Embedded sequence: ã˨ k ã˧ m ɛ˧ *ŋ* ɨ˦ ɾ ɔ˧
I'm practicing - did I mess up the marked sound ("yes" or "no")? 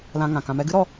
yes